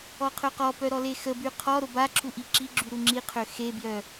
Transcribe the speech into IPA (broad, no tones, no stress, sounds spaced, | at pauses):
ɔ qʰ ø q ɔ p œ ɾ ɔ l e x ə b y qʰ ɔ ɾ o b a ǁʰ u ʔ i ǁ i ɡ͡ǁ y ɾ u ŋ͡ǁ i qʰ ø x e b j œ